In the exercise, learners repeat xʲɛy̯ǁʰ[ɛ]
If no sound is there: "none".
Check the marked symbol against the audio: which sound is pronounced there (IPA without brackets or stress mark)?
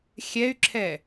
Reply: ɛ